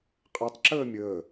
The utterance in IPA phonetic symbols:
qʼ ɛ tˤ ǁ əː mʲ əː

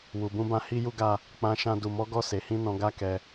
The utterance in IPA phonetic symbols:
w u˨ b ũ˧ b ã˧ h i˦ j u˦ ɡ a˦˨ | k͡p ã˧ ʃ ã˧ d u˨ m ɔ˨˦ ɡ ɔ˦˨ s e˨˦ h ĩ˦ n ɔ̃˧ ɡ a˦ k ɛ˧

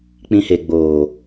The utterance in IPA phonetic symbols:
k͡p ĩ˧ h e˨ ɡ͡b oː˨

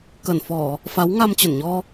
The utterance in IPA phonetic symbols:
k ə˧˩ n f ɔ˧˩˨ | f a˨˦ w ŋ a˧ m t͡ɕ ə˧˩ n ɲ ɔ˧

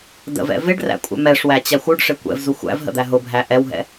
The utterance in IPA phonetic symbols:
d ə̰ v ɛ̰ v ɪ ɖ r æ̰ kʷʼ ɛ̰ m ɛ ʂ w æ t͡ɕ æ xʷ u ɖ ʂ ɪ kʷ ɛ̰ v z u xʷ æ̰ v ɦ ə̰ d̪ æ ɦ ʊ bʱ æ ʔ ɛ w ɦ ɛ̰

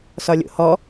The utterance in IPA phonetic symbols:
s ɒ lʲ o̰ h ɔ

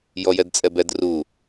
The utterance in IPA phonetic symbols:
j ɔ j ɛ d t͡sʼ ɛ b ɛ d r u

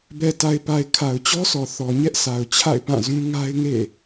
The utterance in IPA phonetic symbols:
b ɛ˨ t a˨ ɪ̯ p a˨ ɪ̯ kʰ a˨ ʊ̯ t͡ɕ ɔ˦ sʰ ɔ˨ θ ɔ˨ ɲ ɛ˦ ʔ sʰ a˨ ʊ̯ t͡ɕʰ a̰˦˨ ɪ̯ p ã˦˨ z ũ˦ ŋ a˦ ɪ̯ ŋ ḛ˦˨

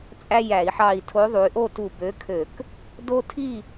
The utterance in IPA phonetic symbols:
t͡sʼ æ˦ j æ˧˩˧ i̯ ħ ɑ˧˩ i̯ tʰ o˨˥ ðˤ u˩˧ y̯ ʔ o˥˨ t u˧˩ b ø˨˥ kʰ ø˧˩˧ k | d o˦ tʰ i˥˨

